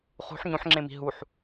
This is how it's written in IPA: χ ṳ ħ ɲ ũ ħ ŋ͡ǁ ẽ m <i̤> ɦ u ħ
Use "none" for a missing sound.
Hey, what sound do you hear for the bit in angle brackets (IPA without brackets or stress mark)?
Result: i̤